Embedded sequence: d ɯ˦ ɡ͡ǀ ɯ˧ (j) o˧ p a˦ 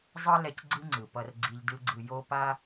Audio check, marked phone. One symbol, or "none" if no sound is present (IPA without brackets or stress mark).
j